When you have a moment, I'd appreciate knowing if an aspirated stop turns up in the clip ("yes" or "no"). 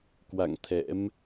yes